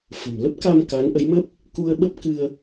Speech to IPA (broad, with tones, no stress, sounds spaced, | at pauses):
f ə̤˨˩ m l ə˦˥ p̚ k a˧ m k a˨˦ n ʔ ə˨˦ j m ə˦˥ p̚ | k u˧ ə̯ ɓ ə˦˥ p̚ k ɨ˧ ə̯